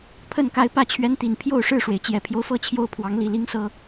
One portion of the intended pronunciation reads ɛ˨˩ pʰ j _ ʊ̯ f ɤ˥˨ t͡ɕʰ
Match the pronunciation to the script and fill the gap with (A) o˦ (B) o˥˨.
A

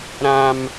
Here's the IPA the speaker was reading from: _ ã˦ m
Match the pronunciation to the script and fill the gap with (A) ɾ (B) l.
A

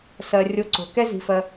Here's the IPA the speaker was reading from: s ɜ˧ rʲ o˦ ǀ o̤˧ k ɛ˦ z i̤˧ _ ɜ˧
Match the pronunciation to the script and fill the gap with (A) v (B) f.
B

